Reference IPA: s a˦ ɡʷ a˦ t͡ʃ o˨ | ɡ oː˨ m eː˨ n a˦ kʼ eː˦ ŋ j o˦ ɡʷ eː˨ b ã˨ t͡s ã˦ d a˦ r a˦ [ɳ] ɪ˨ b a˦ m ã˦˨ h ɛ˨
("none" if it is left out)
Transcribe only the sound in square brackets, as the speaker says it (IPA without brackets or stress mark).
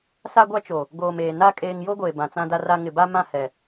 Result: ŋ